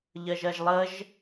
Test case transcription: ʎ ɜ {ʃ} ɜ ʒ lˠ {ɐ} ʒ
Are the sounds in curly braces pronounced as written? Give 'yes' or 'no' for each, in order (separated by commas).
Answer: no, no